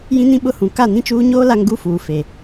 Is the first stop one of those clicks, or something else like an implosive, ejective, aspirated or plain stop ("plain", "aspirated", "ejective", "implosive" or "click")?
implosive